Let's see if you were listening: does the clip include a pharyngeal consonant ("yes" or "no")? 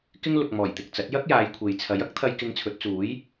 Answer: no